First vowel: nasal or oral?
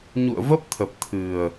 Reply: oral